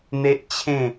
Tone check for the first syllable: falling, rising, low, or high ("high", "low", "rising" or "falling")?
high